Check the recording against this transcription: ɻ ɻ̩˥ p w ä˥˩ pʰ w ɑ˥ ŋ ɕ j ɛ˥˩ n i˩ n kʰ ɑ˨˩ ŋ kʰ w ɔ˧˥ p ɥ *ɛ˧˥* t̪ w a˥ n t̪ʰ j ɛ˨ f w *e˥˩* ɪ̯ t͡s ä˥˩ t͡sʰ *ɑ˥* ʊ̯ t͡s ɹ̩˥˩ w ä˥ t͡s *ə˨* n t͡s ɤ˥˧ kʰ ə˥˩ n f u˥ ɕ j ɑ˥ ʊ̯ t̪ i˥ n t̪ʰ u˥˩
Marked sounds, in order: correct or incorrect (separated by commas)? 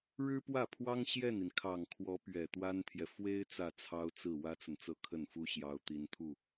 incorrect, incorrect, correct, correct